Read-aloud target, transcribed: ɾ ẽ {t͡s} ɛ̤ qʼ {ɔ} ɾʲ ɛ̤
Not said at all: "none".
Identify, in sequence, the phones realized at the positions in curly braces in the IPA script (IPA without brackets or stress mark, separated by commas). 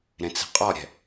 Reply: t͡s, ɔ